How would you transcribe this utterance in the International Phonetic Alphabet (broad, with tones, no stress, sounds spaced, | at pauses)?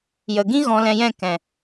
j ə˨ ɡ ĩ˦ ɣ ɔ̃˧ l ɛ̃˧ j ɛ̃˦˨ k ɛ̃˨